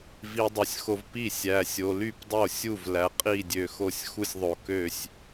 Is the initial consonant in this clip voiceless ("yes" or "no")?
no